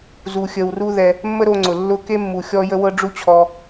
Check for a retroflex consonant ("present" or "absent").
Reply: present